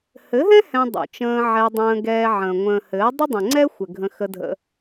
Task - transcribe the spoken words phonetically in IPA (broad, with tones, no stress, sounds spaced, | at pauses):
h ɘ˨˦ ɦ ɛ̃˦ h ɛ̃˧ dˤ ṵ˨ t͡ʃ ə̃ː˧ ʕ ɛ˧ dˤ ə̃ː˧ ɡ ɛː˧ ʕ ə̃ː˨ ŋʷ ə̃ː˨ h ɘː˨˦ dˤ ə˦ dˤ ə̃˨ ŋ͡ǀ ɛ˦ xʷ ɘ˨ ɡʱ ə̃˧ x ə˧ dʱ ə̰˧